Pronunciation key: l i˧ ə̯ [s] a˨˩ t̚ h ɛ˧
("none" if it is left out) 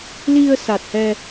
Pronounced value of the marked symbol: s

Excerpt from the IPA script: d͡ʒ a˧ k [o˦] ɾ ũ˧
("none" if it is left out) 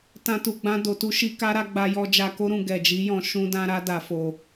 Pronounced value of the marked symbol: o˦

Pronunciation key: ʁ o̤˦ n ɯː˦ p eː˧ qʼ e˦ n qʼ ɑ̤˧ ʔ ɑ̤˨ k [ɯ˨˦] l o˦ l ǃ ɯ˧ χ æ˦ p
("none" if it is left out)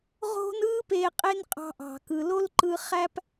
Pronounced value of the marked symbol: ɯ˨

